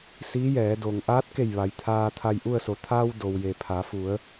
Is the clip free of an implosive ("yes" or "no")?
yes